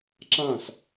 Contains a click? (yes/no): yes